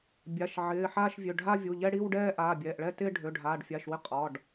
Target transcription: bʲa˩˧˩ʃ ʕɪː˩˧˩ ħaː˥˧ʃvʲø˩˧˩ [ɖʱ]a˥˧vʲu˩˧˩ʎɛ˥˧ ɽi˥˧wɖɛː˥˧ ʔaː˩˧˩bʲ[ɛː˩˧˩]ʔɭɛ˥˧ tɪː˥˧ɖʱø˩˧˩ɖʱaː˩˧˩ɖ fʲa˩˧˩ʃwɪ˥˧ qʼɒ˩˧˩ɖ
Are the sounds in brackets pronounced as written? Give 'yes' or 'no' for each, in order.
yes, yes

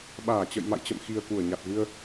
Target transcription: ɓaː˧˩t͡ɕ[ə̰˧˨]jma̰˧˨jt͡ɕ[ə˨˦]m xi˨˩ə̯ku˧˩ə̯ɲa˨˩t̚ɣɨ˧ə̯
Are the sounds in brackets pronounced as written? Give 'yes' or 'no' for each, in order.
yes, no

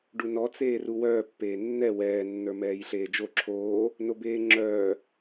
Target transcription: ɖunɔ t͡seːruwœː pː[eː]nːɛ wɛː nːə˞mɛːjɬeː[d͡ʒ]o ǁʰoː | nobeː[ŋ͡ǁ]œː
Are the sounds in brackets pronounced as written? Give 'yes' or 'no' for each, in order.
yes, yes, yes

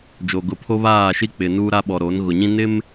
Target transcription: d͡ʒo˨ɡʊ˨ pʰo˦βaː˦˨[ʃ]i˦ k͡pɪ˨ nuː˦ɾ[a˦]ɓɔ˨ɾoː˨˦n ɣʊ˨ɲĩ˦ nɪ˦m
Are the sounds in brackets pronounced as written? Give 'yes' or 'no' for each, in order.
yes, yes

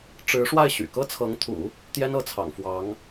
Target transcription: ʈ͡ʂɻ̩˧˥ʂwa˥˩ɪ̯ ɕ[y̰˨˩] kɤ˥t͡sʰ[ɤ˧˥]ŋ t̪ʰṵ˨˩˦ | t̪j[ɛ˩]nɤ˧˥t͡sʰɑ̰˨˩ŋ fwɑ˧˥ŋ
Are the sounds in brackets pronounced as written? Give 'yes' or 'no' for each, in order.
yes, yes, no

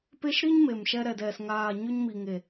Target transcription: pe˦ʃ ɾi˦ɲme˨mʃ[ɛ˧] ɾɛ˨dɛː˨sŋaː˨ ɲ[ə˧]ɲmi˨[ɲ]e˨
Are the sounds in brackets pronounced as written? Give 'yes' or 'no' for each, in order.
yes, no, no

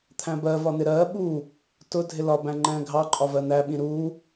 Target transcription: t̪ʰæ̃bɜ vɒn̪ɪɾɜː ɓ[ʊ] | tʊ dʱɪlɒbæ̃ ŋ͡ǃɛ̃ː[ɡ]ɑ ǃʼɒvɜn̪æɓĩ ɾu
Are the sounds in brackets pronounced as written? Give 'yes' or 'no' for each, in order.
no, no

